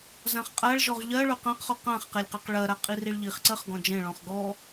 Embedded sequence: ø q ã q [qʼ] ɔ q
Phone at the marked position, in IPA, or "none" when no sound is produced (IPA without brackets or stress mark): χ